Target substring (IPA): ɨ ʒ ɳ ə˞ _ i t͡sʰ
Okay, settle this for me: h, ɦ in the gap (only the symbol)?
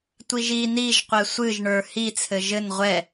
h